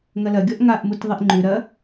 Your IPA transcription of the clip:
ŋ ɐ l ɐ ɡʲ ɔ ʔ ŋ a ʔ m u t ðˤ i ʔ ŋ͡ǃ ʉ ɾ ɐ

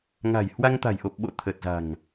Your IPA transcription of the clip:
ŋ a̤˨˩ j h w a˧ ŋ t̪ a̤˨˩ j ʔ o˨˩ p̚ ɓ o̰˧˨ t̪ʰ ə˨˩ t̚ z a̤˨˩ ŋ

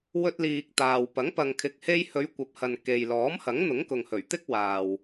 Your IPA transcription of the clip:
w ɵ˧ t̚ l iː˨ k̚ t̪ aː˨ w p ɐ˨˥ ŋ p ɐ˨ ŋ kʰ ɪ˨ k̚ h e˧ j h ɵ˨˧ ɥ kʷ ɐ˨˥ p̚ h ɐ˨ n k e˨ j l ɔː˨˥ m h ɐ˨˥ ŋ n̪ ʊ˨˥ ŋ k ʊ˨ ŋ h ɵ˨˩ ɥ t̪ ɪ˥ k̚ w aː˨ w

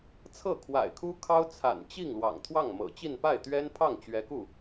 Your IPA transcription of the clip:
t͡sʰ ɤ˥˩ kʰ w a̰˨˩ ɪ̯ kʰ u˥ kʰ ɑ˥ ʊ̯ t͡sʰ a̰˨˩ n t͡ɕ i˥˩ ŋ l w ɑ̰˨˩ ŋ t̪ʰ w ɑ˥˩ ŋ m ɤ̰˨˩ t͡ɕ i˥˧ n p a˥˩ ɪ̯ t̪ ɥ ɛ˥ n pʰ ɑ˥˩ ŋ t͡ɕ ɥ ɛ˧˥ k u˥˩

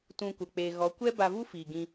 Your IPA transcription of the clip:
t ũ˧ kʷ ə˨ k͡p eː˨ ɣ ɔ˨˦ kʷ ɛ˦ b a˧ v u˦ f iː˨ ɡ ĩ˧

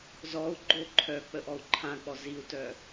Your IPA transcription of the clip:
z ɔ u̯ ɡ͡ǃ o ǃʰ œ k͡p ə ʔ ɔ u̯ ǃʰ ã k͡p ɔ z i u̯ t œ

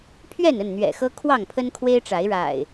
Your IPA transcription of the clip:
pʰ ɥ ɛ˥˨ n ə˥˨ n n̪ ɥ ɛ̰˨˩ x ɤ˦ kʰ w ɑ˥˨ ŋ pʰ ə˦ n kʰ w e˦ ɪ̯ ʈ͡ʂ a˨˦ ɪ̯ ɻ a̰˨˩ ɪ̯

